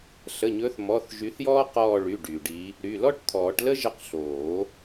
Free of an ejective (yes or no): yes